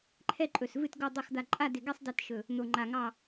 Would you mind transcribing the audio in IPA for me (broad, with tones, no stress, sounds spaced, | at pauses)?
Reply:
ǃʰ ɛ˥˨ ǃʼ ɵ˧˩ s v ɨ˧˩ t ɡ o˧˩ dˤ ɨ˧˩ x d̪ a˧˩ ǃʼ a˥˨ d ɪ˧˩ ɡ ɛ˥˨ sˤ d ɛ˥˨ t ʃ ɵ˧˩ | n̪ o˧˩ ŋ͡ǃ a˧˩ ŋ ɑ˥˨